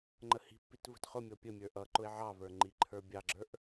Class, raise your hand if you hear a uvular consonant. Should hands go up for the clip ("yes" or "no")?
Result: yes